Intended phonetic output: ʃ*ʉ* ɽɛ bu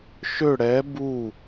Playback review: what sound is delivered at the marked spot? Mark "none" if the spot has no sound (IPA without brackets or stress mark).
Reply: ø